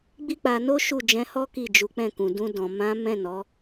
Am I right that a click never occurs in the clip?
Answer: yes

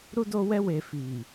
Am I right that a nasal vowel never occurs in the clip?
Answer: yes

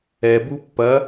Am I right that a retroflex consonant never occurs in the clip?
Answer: yes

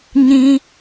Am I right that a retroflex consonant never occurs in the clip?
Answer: yes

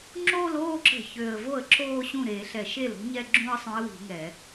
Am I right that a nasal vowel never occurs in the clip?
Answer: no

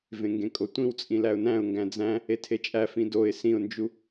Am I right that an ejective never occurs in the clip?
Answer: no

